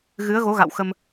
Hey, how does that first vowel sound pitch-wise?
rising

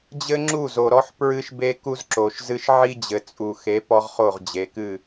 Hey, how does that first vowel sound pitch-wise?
high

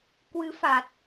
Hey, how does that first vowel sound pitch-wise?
rising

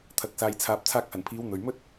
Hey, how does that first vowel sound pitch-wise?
low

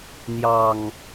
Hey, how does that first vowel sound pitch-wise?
low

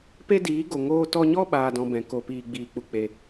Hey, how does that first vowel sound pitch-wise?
high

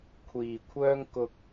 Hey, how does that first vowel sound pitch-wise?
low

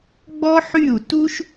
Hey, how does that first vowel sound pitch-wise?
high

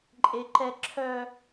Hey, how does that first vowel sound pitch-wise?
high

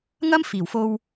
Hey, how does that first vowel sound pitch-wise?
high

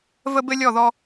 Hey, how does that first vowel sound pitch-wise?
high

